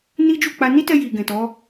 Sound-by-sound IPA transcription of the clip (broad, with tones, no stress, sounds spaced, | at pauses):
n i˦ d͡ʒ u˦˨ k͡p a˧ n i˦ t ɛ˧ j i˨ ɡ ɛ̃˨ t ɔ˨˦